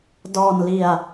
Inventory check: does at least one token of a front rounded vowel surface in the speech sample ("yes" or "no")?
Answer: no